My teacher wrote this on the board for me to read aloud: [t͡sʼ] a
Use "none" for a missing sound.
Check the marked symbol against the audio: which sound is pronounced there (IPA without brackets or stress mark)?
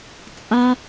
t͡sʼ